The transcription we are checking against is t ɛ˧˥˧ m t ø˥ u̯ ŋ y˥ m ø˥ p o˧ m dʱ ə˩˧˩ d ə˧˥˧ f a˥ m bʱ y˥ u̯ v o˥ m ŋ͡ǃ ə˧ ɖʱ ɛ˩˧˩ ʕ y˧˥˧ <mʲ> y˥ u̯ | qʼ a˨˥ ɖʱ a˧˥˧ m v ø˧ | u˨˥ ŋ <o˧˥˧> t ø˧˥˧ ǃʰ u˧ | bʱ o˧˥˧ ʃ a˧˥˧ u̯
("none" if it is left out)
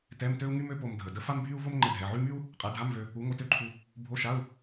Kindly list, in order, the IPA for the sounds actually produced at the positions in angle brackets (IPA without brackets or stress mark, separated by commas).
m, o˧